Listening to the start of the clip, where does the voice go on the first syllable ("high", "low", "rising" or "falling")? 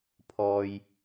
low